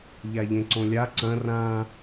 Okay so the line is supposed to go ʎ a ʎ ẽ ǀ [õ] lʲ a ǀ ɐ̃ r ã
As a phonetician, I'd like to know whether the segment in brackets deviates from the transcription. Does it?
no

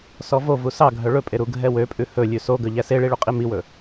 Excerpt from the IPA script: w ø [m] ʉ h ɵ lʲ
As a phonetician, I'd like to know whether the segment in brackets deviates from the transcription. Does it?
yes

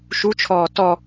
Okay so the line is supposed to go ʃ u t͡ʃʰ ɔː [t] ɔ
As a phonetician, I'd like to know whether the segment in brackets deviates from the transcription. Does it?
no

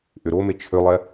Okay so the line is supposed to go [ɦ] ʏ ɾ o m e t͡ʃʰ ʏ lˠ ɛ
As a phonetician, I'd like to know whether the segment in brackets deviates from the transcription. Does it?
yes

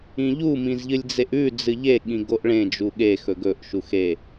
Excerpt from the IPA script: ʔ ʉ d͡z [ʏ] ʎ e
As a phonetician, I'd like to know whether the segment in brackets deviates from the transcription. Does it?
yes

